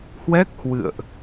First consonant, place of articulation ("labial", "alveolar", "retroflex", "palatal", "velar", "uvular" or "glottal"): glottal